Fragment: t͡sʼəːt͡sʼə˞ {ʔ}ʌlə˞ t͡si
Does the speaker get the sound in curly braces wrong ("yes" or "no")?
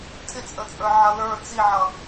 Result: yes